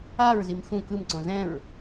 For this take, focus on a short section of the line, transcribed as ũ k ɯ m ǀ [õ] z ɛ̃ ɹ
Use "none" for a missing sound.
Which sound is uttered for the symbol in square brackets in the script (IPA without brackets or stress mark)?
õ